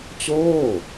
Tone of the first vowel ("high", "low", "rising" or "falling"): falling